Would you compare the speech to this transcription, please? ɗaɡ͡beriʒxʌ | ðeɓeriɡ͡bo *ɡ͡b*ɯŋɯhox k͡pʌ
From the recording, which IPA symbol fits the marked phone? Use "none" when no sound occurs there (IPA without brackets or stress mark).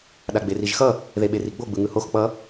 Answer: ɡ͡b